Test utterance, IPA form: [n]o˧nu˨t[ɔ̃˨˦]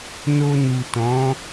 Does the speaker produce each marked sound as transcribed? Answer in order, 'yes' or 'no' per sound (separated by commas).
yes, yes